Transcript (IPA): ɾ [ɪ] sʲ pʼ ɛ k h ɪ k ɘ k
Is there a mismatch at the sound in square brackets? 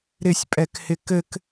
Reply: no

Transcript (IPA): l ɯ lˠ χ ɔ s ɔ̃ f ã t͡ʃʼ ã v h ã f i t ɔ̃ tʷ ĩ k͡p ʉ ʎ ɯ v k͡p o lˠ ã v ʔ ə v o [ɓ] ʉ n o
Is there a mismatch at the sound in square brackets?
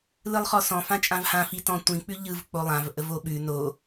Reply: no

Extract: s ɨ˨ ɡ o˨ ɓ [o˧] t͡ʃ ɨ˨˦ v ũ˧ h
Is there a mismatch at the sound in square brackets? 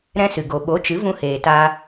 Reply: yes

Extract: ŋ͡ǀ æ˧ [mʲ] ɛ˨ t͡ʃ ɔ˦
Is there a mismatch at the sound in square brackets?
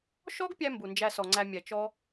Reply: no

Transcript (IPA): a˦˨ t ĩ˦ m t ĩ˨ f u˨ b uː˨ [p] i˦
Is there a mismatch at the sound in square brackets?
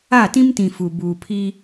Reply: yes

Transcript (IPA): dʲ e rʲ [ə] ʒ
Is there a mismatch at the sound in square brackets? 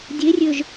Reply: yes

